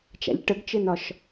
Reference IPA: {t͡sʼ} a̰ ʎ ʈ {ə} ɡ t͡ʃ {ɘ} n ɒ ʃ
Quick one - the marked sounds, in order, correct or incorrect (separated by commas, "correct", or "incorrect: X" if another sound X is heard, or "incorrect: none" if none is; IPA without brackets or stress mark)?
incorrect: t͡ʃ, correct, correct